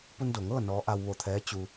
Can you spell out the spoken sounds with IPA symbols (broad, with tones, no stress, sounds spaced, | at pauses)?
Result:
p u˧ n d o˩ ŋ ɤː˥˨ n ɔː˧˥ ʔ a˧ w ʋ o˧˩ t̪ʰ ɛː˧˥ t͡ɕ u˧